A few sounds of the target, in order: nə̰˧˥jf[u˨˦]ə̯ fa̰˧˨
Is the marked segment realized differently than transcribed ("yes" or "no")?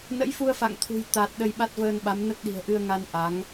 yes